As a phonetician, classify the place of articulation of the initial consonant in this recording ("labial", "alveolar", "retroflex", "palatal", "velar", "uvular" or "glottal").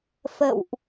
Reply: labial